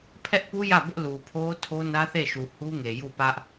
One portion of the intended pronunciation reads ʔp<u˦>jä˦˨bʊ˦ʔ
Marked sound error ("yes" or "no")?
no